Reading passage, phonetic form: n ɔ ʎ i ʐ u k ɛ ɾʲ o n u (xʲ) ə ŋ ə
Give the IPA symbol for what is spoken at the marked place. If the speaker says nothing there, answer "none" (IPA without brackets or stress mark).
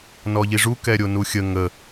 xʲ